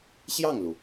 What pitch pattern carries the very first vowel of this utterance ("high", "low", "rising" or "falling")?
falling